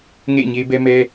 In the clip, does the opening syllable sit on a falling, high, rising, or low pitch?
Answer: falling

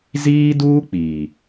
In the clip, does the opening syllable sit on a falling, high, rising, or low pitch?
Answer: high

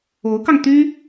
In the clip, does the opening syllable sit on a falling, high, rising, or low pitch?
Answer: rising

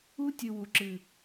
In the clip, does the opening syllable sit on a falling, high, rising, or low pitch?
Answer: high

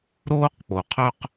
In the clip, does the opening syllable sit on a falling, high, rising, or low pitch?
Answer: high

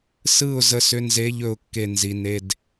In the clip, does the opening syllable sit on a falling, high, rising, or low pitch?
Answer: falling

